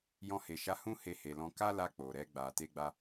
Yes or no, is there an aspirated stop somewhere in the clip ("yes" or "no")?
no